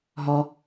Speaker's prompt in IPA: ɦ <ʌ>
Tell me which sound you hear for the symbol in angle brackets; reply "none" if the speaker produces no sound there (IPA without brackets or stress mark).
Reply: ɔ